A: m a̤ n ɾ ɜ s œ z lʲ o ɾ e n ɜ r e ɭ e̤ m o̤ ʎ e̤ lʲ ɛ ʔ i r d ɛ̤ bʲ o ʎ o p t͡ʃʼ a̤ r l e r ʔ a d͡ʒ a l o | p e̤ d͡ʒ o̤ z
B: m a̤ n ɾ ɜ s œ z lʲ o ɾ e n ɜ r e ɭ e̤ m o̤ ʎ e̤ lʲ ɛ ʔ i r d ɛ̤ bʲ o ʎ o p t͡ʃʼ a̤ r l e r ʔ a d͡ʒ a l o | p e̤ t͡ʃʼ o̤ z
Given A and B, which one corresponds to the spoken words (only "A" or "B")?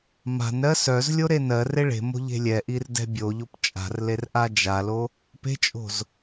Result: B